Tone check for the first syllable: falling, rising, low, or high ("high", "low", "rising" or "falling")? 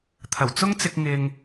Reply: low